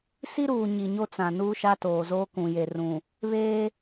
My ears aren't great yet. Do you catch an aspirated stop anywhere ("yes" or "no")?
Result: no